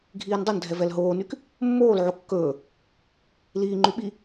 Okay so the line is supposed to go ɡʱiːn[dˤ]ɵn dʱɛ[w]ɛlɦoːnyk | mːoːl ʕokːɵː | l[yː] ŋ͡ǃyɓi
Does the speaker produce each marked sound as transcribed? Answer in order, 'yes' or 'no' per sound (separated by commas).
yes, no, no